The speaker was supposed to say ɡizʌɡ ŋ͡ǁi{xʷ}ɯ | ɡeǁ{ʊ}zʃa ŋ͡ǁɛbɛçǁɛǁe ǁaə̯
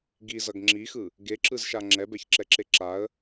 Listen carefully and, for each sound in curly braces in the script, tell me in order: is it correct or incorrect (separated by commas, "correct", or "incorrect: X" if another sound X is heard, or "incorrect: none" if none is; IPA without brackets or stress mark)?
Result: incorrect: x, incorrect: ɯ